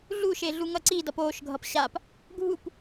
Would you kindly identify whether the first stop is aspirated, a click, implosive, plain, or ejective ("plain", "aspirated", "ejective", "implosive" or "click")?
click